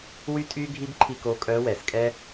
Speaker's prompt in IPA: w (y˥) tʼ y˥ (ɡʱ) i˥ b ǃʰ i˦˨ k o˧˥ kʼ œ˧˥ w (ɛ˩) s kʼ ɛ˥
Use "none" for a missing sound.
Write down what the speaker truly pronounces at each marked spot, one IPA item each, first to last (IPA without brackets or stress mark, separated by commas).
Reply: y˥, ɡʱ, ɛ˩